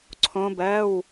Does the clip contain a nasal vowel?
yes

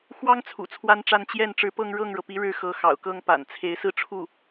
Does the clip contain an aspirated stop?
yes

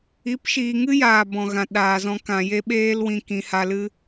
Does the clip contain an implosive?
yes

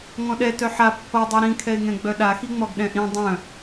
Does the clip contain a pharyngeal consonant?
yes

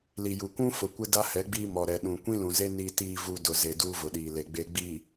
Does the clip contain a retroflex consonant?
no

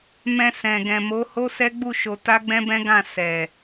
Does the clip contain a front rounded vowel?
no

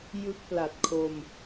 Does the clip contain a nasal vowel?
no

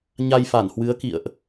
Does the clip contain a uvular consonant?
no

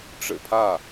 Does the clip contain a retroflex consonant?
yes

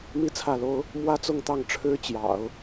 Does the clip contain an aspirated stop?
yes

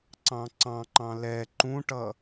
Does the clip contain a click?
yes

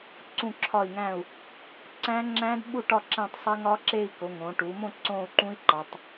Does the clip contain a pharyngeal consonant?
no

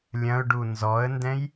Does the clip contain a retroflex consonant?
yes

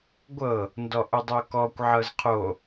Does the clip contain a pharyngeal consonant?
yes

